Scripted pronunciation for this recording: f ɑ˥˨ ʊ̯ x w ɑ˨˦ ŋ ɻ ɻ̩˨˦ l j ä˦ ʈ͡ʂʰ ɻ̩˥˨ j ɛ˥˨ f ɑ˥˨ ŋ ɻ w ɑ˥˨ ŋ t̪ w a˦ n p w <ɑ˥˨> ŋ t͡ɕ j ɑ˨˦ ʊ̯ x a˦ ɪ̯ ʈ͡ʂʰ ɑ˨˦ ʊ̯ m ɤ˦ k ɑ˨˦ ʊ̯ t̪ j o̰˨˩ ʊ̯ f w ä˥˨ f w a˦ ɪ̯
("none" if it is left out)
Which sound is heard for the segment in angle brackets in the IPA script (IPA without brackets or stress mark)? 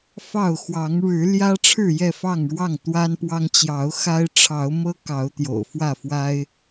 ɑ˦